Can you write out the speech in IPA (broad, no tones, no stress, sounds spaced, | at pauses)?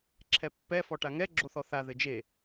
ǁʰ ɛ pː ɛ f ɔ ʈ a ŋ ɛ ɡ͡ǁ o θ ɔ θ a ð ɘ d͡ʒ e